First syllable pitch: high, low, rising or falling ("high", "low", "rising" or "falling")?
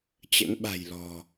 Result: rising